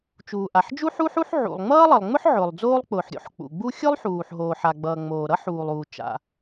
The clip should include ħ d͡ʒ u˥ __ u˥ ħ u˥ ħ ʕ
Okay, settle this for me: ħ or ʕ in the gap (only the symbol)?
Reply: ħ